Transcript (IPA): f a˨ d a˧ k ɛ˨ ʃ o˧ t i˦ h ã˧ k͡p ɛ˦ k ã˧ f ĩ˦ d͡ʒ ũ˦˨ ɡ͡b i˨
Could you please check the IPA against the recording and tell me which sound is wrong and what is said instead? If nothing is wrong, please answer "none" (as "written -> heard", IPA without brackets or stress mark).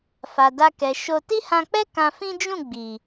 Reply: none